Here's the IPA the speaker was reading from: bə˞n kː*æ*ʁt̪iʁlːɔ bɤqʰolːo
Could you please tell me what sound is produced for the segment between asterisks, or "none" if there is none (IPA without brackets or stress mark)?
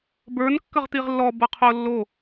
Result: ə